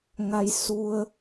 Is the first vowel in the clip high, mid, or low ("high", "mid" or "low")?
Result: low